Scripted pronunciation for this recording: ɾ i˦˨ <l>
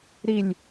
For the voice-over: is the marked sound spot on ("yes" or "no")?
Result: no